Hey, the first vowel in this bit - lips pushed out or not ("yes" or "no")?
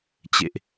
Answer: no